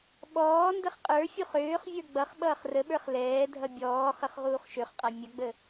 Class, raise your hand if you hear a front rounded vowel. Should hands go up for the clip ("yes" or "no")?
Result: yes